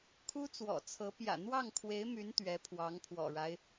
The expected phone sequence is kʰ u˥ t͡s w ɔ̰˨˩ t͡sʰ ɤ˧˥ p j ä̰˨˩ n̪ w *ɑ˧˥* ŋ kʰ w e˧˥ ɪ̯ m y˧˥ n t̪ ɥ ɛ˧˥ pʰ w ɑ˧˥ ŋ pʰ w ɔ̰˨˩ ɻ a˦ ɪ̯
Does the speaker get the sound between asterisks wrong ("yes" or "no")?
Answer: yes